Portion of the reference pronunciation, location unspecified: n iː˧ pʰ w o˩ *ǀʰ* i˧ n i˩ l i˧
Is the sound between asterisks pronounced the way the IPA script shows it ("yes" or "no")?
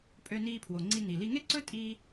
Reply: no